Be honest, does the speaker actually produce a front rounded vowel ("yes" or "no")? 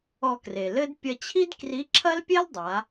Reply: no